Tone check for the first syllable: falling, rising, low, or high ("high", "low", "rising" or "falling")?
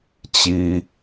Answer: low